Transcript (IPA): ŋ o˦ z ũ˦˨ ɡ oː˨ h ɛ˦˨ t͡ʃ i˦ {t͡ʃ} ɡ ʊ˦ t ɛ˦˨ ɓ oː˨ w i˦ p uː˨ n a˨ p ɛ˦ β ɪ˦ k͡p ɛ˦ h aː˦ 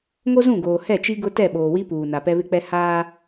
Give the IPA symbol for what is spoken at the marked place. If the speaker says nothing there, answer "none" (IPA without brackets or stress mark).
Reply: none